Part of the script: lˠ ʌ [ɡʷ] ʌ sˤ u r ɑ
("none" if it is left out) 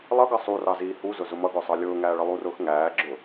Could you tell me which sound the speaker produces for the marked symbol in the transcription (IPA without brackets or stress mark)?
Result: ɡ